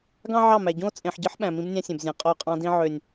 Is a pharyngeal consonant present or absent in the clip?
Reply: present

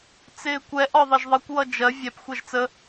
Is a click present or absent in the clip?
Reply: absent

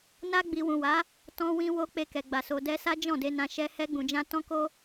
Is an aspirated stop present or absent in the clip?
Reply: absent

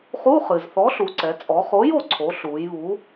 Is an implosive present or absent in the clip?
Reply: absent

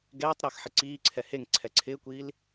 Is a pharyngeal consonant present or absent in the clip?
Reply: present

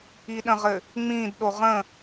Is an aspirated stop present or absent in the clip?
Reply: absent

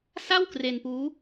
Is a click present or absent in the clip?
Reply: absent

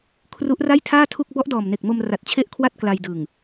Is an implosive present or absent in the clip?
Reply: absent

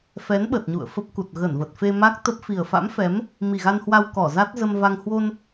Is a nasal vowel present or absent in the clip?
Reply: absent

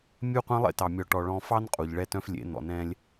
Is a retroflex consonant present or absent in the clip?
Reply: present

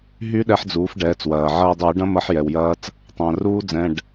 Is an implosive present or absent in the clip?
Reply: present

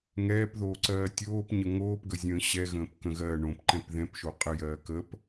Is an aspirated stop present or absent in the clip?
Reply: absent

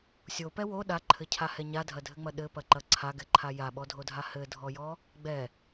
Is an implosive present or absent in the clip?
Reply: present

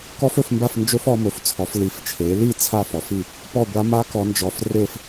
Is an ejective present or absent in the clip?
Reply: absent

